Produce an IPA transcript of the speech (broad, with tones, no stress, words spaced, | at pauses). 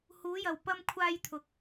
huː˨˧jɐ˨w pɐ˧mkʷʰaː˧j t̪ʰʊ˧k̚